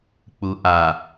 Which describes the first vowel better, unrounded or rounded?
rounded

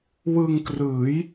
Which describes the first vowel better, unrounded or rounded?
unrounded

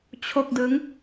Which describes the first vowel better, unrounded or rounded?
rounded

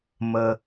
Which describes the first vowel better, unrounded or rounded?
unrounded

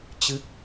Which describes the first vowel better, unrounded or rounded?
unrounded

